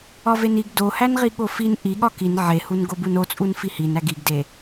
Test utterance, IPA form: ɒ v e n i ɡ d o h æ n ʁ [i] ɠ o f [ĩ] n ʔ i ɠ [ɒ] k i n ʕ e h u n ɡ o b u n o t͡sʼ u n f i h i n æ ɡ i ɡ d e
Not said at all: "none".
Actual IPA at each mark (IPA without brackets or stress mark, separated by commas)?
i, i, ɒ